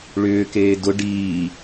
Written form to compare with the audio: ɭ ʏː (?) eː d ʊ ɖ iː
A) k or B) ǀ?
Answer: A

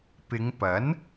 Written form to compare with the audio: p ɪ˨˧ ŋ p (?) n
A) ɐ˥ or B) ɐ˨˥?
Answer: B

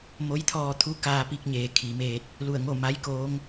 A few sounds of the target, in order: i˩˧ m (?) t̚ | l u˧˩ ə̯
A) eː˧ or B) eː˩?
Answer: A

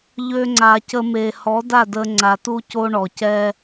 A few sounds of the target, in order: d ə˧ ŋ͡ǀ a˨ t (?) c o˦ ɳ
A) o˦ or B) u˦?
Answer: B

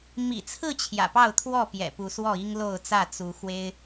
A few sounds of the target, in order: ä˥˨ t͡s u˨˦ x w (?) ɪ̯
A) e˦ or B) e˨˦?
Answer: A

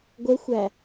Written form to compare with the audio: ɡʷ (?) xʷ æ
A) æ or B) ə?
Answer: B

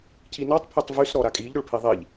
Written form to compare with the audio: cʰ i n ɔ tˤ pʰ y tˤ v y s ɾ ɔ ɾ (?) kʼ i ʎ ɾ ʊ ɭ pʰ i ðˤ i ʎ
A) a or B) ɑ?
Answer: A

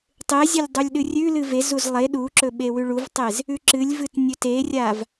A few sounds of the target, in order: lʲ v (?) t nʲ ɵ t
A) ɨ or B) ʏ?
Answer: A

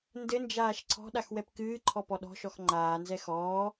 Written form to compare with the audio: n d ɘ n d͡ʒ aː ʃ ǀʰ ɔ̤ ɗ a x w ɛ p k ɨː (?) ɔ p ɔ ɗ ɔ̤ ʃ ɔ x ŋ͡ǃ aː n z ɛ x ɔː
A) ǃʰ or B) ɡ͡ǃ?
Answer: A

